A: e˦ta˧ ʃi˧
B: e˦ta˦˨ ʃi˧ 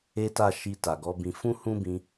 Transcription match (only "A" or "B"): B